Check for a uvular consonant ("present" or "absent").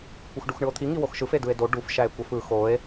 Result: absent